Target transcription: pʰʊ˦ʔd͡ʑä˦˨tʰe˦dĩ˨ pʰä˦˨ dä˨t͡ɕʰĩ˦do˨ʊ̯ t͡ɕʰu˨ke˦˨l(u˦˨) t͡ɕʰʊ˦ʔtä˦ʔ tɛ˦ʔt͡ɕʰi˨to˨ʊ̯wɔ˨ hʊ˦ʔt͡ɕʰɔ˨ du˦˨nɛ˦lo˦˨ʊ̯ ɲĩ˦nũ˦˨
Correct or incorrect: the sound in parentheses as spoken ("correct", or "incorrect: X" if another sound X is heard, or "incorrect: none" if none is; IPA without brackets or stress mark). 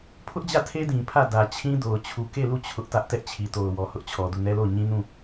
correct